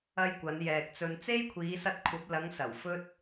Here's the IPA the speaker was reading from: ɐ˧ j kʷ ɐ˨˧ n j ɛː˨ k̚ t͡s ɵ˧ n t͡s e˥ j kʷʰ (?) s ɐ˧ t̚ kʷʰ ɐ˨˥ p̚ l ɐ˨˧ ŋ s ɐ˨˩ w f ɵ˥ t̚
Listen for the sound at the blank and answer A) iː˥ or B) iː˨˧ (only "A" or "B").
B